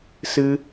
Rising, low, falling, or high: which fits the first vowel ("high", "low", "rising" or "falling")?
high